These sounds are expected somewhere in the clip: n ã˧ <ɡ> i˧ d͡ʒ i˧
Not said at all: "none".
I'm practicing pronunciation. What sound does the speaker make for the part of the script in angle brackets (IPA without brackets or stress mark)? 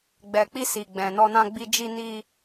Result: ɡ͡b